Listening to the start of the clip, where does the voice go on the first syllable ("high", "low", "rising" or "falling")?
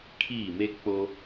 falling